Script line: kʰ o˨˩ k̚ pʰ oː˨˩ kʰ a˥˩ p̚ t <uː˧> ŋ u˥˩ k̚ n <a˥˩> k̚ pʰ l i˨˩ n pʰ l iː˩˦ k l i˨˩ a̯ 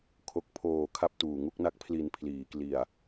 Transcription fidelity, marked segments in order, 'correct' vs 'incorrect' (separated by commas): incorrect, correct